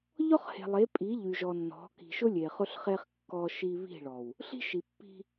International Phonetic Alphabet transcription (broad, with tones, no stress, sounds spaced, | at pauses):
ʎ ɔ˦ χ h e̤˨ lˠ e˨˦ pʼ i˨˦ ʎ y˨ ʒ ɔ˨ nː ɔ̤˨˦ k i̤˨ ʃ ʊ˦ lʲ e˨ χ ʊ˦ ɬ χ e˦ χ kː ɔ˦ ʃ i˦ β i̤˦˨ ɭ ɔ˨ w | ɬ i̤˦ ʃ i˨ pː i̤˦